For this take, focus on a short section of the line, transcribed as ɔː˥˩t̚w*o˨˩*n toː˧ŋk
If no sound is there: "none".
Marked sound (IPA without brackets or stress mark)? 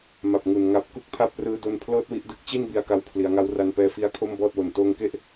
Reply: o˨˩